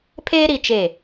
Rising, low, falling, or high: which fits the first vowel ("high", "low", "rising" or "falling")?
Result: high